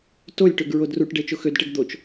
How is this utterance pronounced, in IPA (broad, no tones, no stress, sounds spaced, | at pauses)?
t o lʲ ʈ ø ɡ ɹ o d r u ʈ ɖ e t͡ʃ o x ø d ʈ e ɡ d̪ o t͡ʃ